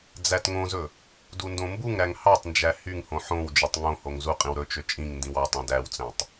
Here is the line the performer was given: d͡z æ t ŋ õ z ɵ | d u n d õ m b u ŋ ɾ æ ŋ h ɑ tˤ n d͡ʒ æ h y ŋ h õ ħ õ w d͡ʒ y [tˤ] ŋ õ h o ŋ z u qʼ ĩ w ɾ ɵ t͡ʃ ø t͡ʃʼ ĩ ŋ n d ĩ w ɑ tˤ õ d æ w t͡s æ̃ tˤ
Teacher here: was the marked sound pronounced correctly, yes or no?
yes